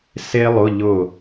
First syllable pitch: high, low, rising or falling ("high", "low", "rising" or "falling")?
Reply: high